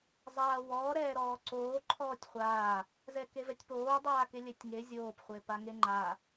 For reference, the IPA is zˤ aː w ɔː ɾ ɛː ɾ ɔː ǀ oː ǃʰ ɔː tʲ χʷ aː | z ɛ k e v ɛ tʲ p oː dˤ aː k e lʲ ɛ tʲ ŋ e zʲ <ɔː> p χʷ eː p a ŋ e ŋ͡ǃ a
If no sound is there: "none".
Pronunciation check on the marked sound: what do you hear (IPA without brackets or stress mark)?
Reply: oː